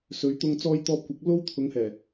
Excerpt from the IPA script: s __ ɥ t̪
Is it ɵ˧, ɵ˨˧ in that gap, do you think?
ɵ˨˧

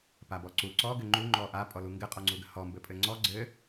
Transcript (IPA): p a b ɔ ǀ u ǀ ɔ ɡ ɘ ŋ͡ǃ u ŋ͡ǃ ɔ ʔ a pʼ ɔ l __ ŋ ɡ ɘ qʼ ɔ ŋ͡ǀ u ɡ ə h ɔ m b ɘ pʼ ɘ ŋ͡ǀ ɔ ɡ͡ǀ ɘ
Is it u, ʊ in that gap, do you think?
u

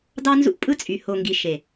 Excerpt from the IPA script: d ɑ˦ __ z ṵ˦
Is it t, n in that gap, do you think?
n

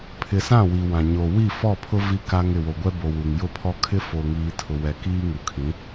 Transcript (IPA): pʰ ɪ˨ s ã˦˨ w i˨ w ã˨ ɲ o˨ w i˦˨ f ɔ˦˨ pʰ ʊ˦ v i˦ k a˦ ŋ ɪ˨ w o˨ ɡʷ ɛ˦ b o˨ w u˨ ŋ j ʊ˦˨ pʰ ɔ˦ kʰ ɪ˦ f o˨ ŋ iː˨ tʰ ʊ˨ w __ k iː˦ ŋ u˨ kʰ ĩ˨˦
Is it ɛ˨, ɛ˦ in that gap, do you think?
ɛ˨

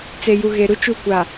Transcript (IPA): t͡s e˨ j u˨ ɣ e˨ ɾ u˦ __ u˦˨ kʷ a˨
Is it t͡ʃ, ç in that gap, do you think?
t͡ʃ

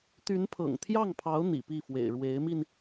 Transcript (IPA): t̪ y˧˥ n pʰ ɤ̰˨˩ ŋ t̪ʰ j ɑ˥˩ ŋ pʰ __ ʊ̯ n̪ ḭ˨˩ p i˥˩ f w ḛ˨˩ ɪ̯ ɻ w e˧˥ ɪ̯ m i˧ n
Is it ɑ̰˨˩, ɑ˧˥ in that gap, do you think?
ɑ˧˥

